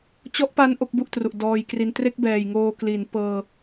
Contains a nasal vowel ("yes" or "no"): no